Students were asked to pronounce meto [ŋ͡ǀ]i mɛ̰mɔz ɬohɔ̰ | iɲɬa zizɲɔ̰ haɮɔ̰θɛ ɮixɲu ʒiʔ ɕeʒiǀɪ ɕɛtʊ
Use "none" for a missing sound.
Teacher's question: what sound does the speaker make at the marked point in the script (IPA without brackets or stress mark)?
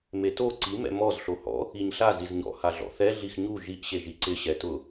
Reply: ǀ